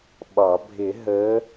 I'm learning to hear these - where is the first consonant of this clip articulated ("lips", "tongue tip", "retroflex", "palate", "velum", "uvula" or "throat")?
lips